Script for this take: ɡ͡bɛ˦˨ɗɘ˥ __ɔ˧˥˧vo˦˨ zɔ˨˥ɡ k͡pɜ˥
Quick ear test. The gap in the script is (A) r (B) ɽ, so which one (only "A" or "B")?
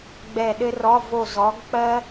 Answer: A